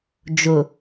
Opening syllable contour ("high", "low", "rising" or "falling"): low